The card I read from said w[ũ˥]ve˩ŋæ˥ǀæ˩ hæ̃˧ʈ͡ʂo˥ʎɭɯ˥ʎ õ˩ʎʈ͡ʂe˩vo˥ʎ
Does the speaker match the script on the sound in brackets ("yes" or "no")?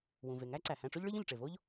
no